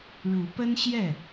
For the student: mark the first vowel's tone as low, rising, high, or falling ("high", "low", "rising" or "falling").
rising